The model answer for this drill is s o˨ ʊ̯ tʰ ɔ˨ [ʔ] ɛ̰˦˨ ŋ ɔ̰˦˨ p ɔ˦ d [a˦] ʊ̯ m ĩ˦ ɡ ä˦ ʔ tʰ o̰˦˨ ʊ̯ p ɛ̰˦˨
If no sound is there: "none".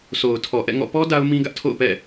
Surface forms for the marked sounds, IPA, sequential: ʔ, a˦

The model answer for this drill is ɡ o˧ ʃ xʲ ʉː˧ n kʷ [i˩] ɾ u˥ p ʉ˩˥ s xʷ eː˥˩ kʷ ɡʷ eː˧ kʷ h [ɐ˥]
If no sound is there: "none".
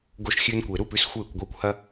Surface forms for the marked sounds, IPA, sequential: e˩, ɐ˥

